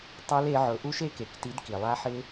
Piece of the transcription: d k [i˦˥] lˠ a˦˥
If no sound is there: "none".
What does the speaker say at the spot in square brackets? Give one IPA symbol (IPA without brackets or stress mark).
i˩